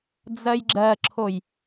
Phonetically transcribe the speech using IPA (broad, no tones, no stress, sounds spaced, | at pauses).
d͡z ɜ j ɡ͡ǁ ɜ ǁʰ o j